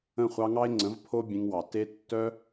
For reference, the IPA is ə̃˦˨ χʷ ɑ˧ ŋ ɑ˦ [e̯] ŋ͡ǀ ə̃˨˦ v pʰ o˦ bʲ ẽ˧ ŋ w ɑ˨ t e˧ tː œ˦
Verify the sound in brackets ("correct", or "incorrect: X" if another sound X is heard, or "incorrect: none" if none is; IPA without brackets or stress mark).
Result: correct